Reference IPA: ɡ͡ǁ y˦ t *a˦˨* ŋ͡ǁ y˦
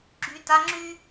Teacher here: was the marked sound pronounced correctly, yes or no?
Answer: no